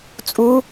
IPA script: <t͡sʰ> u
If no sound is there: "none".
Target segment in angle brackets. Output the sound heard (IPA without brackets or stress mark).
t͡sʼ